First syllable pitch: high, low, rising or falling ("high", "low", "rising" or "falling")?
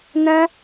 high